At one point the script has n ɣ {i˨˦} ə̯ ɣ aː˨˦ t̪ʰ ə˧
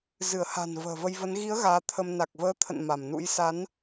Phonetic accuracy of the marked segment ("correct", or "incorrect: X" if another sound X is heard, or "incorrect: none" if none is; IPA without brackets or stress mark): correct